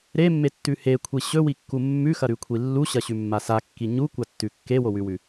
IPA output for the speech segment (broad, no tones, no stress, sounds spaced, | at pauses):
ɾ e mː e tː ʉ h e kʷʰ i ɕ ɵ w i kː u mː ʉ x ɐ ɾ ʉ kʷʰ i lː u ɕ ɐ ɕ ʉ mː a s a kː i ɲ u kʷ a tː ʉ kː e w o w ʉ w ʉ